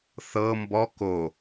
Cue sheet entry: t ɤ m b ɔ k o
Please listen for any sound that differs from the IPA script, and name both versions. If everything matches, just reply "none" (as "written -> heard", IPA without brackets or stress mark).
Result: t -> θ